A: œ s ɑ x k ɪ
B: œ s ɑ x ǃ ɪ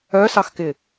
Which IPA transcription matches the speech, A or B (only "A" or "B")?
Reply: A